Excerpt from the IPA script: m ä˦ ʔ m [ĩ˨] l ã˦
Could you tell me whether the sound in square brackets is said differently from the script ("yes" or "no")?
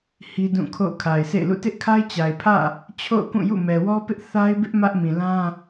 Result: no